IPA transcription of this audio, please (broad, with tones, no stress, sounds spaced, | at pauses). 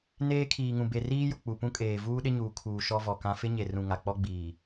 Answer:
n eː˦ kʰ iː˨ ŋ ũ˨ b e˨ r iː˦ j ʊ˨ k͡p u˨ p ũ˦ kʼ eː˨ v uː˦ ɗ ɪ˦ ɲ uː˨ kʰ uː˨ ʃ ɔ˦ v ɔ˨ k ã˦ f ɪ˦ ɲ e˨ r ũ˨ ŋ a˨ k͡p ɔ˦ ɡ͡b iː˨